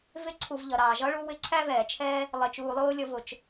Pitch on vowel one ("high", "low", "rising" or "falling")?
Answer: high